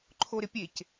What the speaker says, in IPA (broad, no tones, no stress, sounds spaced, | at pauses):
ǃʰ o ɾ ɪ pʲ e c